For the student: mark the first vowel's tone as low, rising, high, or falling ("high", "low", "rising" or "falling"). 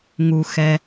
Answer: low